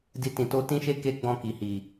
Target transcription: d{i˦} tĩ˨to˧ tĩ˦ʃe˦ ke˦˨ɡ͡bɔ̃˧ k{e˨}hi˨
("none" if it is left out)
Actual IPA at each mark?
i˧, i˨

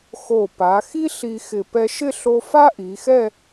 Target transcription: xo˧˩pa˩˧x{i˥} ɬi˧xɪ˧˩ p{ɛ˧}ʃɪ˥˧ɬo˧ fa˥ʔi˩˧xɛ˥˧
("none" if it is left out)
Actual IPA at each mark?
i˥, ɛ˧

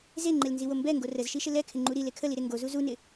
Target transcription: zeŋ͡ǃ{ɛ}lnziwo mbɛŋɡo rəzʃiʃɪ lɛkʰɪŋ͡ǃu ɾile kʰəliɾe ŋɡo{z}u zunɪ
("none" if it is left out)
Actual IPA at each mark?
e, z

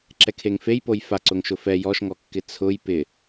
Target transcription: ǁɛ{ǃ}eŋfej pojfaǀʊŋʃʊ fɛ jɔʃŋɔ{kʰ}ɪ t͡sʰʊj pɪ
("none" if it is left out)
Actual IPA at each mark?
kʰ, kː

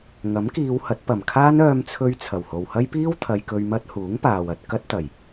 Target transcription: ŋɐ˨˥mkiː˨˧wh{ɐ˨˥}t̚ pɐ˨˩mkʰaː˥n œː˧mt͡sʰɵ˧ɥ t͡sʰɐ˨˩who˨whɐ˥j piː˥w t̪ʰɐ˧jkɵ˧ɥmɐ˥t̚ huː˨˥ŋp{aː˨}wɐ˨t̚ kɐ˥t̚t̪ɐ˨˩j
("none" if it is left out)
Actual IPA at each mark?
ɐ˨˥, aː˨

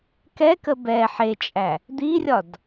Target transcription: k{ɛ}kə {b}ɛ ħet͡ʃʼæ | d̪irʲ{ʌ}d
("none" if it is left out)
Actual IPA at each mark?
ɛ, b, ɒ

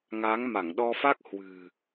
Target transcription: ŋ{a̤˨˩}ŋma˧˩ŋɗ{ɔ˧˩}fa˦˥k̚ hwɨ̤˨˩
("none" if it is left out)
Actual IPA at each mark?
a˨˦, ɔ˧

